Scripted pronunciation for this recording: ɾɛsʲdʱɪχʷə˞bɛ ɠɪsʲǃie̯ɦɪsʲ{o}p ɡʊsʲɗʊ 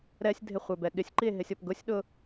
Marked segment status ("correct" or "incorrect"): incorrect